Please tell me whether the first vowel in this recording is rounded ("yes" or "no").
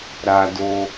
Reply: no